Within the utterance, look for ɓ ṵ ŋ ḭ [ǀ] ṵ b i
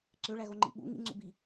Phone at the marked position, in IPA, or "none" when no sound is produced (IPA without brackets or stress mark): ŋ͡ǀ